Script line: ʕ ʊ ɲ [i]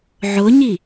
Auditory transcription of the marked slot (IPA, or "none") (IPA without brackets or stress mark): i